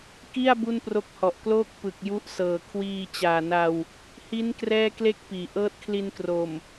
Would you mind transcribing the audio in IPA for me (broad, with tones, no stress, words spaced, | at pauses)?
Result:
ki˥˩a̯ bu˥˩npro˦˥k̚ hɔ˨˩ʔkloː˥˩k̚ pɯ˨˩k̚ju˦˥ʔsɤː˨˩ kʰwiː˧ t͡ɕaː˨˩na˧w | hi˦˥n krɛː˥˩kle˥˩k̚piː˩˦ ʔɤː˦˥t̚kʰli˧nkro˨˩m